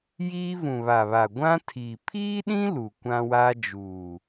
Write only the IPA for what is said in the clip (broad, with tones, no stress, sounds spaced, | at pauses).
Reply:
j iː˦ v ũ˨ β a˨ β a˨ ɡʷ ã˦ tʰ iː˨ pʰ iː˦ ɗ ĩ˦ l u˨ kʷ ã˦ w a˦ d͡ʒ uː˨